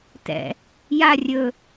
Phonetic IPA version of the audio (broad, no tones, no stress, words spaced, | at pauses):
tɛ̰ | ja rʲɵ